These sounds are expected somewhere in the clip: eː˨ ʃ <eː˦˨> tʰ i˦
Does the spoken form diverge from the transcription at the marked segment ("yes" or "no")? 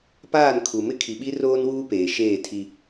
no